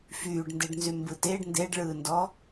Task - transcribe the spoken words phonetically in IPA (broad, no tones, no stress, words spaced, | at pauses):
fyːɖndeɖnzy mbɯteɖ ndeɖɭɯːndɔ